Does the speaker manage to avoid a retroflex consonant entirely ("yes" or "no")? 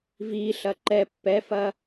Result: yes